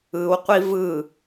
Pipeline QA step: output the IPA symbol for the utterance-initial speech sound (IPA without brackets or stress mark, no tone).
ɯ